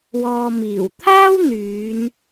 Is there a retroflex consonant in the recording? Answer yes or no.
no